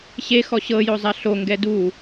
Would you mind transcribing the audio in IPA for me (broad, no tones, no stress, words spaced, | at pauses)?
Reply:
ɕexɔ ɕɤjozˤa ɬo ŋɡɛdu